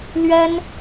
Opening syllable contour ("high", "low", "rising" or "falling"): high